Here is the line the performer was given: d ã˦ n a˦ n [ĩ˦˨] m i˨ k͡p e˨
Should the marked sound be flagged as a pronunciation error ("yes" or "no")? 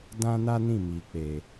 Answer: no